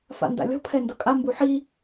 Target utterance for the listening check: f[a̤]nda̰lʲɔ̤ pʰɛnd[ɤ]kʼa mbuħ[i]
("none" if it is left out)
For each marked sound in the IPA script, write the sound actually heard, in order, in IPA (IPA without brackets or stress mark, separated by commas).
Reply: a̰, ɤ, i